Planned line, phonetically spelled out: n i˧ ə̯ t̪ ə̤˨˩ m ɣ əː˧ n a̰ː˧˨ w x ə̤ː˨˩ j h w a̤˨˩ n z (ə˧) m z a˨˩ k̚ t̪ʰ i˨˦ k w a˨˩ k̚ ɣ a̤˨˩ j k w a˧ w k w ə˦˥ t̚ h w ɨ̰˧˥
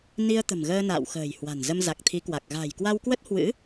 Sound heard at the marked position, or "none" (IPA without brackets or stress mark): ə˧